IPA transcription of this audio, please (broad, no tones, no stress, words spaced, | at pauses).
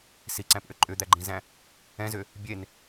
siǀæ̃pʔʏ ǃʼʏd̪æɡ͡ǃĩzæ̃ | ɛ̃zʏ | bʲen